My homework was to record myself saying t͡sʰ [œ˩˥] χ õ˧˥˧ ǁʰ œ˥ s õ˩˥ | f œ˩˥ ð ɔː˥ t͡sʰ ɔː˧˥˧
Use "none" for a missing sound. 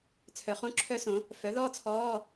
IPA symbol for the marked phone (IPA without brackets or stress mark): œ˩˥